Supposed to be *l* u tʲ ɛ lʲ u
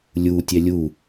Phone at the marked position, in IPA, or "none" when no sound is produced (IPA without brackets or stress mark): lʲ